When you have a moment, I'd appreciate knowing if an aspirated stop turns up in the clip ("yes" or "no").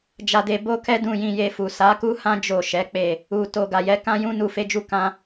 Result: no